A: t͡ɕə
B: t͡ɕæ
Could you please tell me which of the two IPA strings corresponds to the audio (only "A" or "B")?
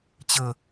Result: A